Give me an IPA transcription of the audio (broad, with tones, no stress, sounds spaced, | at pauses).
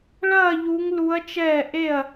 ɭ ɐː˥˧ ʎ u˦˥ ŋ l u˦˥ ɐ̯ t͡ʃ ɛː˥˧ ʔ e˥˧ ɐ̯